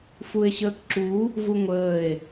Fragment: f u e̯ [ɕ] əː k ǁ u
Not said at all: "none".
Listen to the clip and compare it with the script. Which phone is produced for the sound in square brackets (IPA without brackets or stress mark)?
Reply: ɕ